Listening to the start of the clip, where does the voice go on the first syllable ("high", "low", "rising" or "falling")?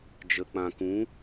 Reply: low